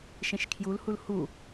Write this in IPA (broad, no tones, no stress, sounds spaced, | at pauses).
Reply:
ʃ ẽ ʃ kʰ j u l h u l h u